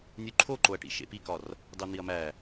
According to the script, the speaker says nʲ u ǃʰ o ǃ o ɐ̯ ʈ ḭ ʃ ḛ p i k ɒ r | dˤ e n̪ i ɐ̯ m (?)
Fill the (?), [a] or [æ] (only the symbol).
æ